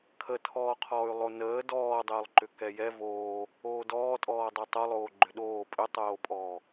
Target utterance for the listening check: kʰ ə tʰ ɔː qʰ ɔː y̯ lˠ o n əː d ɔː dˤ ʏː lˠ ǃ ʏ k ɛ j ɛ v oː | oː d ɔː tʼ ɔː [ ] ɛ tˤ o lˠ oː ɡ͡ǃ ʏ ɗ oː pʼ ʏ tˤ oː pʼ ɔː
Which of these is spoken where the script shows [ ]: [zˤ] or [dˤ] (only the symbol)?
dˤ